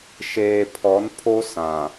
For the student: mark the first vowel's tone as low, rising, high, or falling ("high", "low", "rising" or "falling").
low